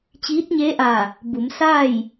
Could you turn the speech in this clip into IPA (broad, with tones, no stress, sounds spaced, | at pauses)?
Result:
t͡ɕ iː˧˥ t̚ ɲ e˧˥ ʔ aː˧˩ | b u˩˧ m s aː˥˨ j